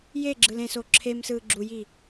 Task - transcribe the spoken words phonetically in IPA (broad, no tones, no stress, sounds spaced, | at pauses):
j e ɡ͡ǁ ɯ l ẽ s o ǁʰ e m s ɯː ɡ͡ǁ u j i